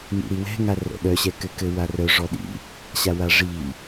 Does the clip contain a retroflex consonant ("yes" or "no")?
yes